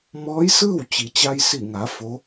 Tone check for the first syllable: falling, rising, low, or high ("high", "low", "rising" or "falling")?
rising